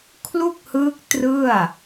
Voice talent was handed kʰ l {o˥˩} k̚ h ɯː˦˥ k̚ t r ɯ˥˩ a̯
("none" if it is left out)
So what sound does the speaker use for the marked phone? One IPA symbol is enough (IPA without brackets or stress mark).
u˥˩